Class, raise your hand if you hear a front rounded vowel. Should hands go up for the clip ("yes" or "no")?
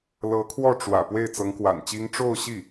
no